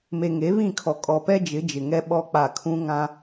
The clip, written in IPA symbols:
m e˨ ŋ e˨˦ β ĩ˦˨ kʰ ɔ˨ kʼ ɔ˨ p ɛ˦ d͡ʒ ɪ˨˦ d͡ʒ ɪ˨ ŋ ɛ˦ ɓ ɔ˦ k͡p a˦˨ kʰ ũ˦ ŋ ã˦

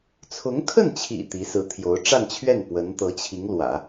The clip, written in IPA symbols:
t͡sʰ ʊ˧˥ ŋ kʰ ə˥˩ n t͡ɕʰ ḭ˨˩ t̪ i˧˥ s ɹ̩˧˥ t̪ʰ j o˧˥ ʊ̯ ʈ͡ʂ a˥˧ n t͡ɕʰ ɥ ɛ˥˩ n p w ə˧˥ n t̪ ɤ˧˥ t͡ɕʰ i˧˥ ŋ l w ä̰˨˩˦

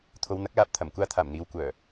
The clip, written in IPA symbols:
t̪ʰ o˨˧ w n̪ ɐ˨˥ k̚ l aː˨ p̚ t̪ʰ ɐ˨˩ m kʷ aː˧ t̪ʰ aː˨˩ m n̪ iː˨ w kʷ œː˨˩

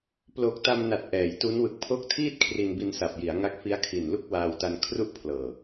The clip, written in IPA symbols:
p l o˨˩ k̚ t a˧ m n a˨˩ t̚ ʔ ɛː˩˦ j t u˦˥ n w ɯ˨˩ k̚ pʰ o˦˥ k̚ tʰ iː˥˩ t̚ kʰ r i˧ n b i˧ n s a˨˩ p̚ j i˩˦ a̯ ŋ a˦˥ k̚ f i˦˥ a̯ kʰ i˨˩ n l u˥˩ k̚ w aː˧ w t a˧ n kʰ r u˥˩ ʔ pʰ l ɤː˨˩

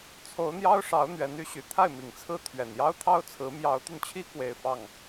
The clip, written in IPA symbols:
t͡sʰ o˧˥ ʊ̯ n̪ j ɑ˥ ʊ̯ ʂ ɑ˧˥ ʊ̯ n̪ ɥ ɛ˧˥ n y˧˥ ɕ y˨˩ t̪ʰ a˥˩ ɪ̯ m i˨˩ ŋ t͡sʰ ɹ̩˥˩ t̪ʰ ɥ ɛ˨˩ n j ɑ˥ ʊ̯ t̪ʰ ɑ˥ ʊ̯ t͡sʰ ɹ̩˧˥ m j ɑ˧˥ ʊ̯ t̪ y˧ n t͡ɕʰ i˥ k w e˥˧ ɪ̯ f ɑ˥˩ ŋ

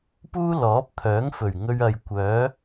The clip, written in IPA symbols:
p uː˥ l ɔː˨˥ p̚ t̪ʰ œː˨˥ ŋ f ɵ˨˩ ɥ ŋ ɵ˧ ɥ ɐ˨ j kʷ œː˨˥

